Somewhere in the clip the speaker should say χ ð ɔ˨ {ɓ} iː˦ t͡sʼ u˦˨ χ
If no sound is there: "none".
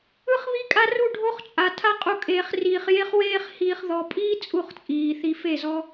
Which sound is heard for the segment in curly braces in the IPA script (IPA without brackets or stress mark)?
pʼ